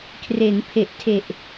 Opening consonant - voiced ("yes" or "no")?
no